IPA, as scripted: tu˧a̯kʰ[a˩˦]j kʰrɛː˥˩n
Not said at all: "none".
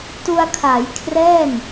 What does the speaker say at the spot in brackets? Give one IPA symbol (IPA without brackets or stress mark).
a˩˦